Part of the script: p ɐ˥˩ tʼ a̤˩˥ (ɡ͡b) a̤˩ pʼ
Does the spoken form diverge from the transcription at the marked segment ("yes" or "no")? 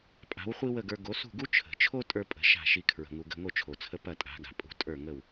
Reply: yes